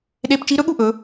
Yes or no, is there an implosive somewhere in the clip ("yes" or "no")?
yes